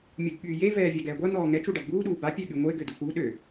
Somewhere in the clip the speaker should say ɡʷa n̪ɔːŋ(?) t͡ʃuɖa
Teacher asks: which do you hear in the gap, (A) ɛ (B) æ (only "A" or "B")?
A